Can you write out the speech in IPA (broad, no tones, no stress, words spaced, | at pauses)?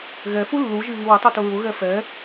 ɣɛ fulːuʒi βiwɪtˤu tʊɹʊɣɛ fɛ